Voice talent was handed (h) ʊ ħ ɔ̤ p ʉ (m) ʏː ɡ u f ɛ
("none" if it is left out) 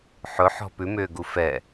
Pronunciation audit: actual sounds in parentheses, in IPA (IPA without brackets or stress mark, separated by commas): ħ, m